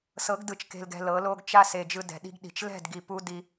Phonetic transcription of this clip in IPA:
s ɤ˨˦ ɡ d ɯ˨ t͡ʃ k e̤˨ l ɡ ɛ̤˨ l ɤ˨˦ l o˦ ɡ t͡ʃ a˦ s e˨ d͡ʒ ɯ˨ d ɛ̤˨ ɗ i̤˦ ɡ ɗ i̤˨ t͡ʃ l ɛ̤˦˨ d ɡ i˨ p u˦ d i˦

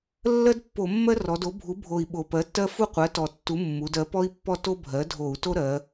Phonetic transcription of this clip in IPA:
lː ɜ˥ d pː o˧˩˧ mː ɜ˥ r ɔ˩˧ d o˩˥ bʱ u˩˥ bʱ o˨˩ i̯ ɓ o˨˩ p ɜ˩˥ tː ɜ˥ f u˥˧ qʷ ɜ˩˥ t ɔ˨˩ tː u˩˥ mː u˩˧ d ɜ˩˥ p ɔ˥ i̯ pː ɔ˥˧ t o˥ bʱ ɜ˩˥ dʱ o˧˩˧ u̯ t o˥ ɾ ɜ˩˧

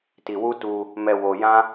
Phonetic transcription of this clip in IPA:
t i˧ w u˦ t u˧ | m ɛ˧ w o˧ j ã˦

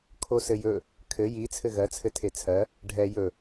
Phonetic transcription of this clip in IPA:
kʰ o s ɘ j ɵ | kʰ ɘ j i t͡sʰ ɘ ɣ ɜ t͡sʰ ɘ tʰ e t͡sʰ ɜ | ɖʱ ɛ j ɵ

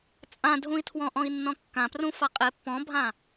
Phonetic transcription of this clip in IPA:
t͡sʼ ã dʱ ũ i̯ tʰ w ɔ̃ ʔ ɔ̃ i̯ nː ɔ̃ kː ã p r ũ f a qʼ e pː ɔ̃ bʱ ã

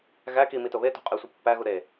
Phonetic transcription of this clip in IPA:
ɣ æ k i m i t o β e t o̤ qʼ e sʷ i pː æ ɣ u ɾ e

